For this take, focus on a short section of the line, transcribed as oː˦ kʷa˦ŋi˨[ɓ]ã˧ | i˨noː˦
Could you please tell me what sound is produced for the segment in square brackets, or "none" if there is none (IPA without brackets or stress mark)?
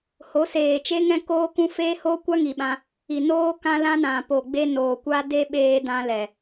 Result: ɓ